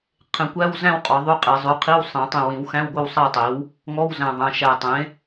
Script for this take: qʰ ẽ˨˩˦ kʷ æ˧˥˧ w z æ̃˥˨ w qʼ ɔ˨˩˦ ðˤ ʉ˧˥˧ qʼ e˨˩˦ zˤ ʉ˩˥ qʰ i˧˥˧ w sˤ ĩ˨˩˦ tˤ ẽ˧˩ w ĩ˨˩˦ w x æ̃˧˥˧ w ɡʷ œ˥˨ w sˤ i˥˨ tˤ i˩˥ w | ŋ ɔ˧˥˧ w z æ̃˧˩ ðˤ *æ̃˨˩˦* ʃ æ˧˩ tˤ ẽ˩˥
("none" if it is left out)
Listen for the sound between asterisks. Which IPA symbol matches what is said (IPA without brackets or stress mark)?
æ̃˩˧˩